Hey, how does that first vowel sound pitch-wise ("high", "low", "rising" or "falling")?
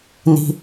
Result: low